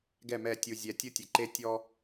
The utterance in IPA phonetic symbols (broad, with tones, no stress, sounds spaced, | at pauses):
ɡ ɛ˦˨ m ɛ˦˨ tʲ u˨ zʲ ɛ˨ tʲ u˦ tʲ e˨ ǃ e˦ tʲ ɔ˦